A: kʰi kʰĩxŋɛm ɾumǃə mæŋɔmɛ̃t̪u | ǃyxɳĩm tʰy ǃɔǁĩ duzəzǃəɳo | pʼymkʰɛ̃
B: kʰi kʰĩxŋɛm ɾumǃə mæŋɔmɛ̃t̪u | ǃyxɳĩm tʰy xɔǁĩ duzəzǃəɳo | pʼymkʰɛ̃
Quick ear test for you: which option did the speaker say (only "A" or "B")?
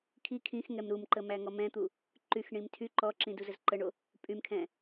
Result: A